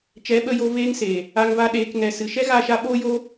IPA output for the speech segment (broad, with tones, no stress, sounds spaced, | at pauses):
t͡ʃ ɛ˨˦ ɓ ə˧ j o˧ v eː˦ ŋ s eː˨ | a˧ ŋ v a˧ ɗ eː˧ k ŋ ɛ˨ s ɨ˨ ʃ ɛ˦ ɣ a˦˨ ʃ a˦ ɓ oː˦ j o˦